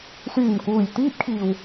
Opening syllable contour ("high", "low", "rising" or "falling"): low